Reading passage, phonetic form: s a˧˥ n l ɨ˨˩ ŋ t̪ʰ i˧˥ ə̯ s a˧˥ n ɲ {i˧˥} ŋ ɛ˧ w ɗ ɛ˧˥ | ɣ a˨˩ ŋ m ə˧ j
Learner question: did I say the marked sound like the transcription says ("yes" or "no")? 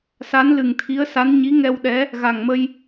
yes